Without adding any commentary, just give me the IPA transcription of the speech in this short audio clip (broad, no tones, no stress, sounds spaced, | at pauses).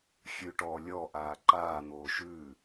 xʲ ʉ ʈ ɔː lʲ ɔ ʔ aː ǃ aː n̪ oː ʃ ʉː